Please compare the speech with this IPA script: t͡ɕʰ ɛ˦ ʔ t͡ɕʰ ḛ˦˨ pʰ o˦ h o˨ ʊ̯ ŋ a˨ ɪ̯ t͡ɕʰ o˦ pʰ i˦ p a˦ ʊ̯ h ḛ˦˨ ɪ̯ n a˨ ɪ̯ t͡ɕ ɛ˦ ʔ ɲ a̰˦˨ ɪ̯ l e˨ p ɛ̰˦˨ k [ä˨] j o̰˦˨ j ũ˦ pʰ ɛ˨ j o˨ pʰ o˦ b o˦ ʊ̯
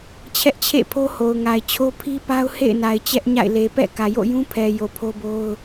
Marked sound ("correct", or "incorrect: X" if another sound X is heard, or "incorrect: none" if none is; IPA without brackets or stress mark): correct